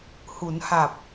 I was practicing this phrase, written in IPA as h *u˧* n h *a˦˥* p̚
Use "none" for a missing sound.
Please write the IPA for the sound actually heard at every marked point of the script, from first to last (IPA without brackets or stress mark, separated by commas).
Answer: u˩˦, a˨˩